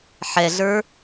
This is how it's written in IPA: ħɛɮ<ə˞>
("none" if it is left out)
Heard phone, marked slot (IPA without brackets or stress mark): ə˞